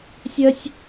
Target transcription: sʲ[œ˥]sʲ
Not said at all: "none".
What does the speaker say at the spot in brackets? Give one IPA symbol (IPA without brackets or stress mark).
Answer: œ˥